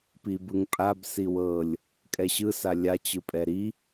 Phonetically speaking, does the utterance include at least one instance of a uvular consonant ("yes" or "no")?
no